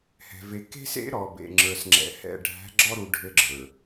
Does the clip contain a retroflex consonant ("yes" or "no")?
yes